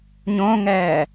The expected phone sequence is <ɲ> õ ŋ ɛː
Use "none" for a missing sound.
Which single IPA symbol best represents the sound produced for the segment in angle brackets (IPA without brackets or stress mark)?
ɲ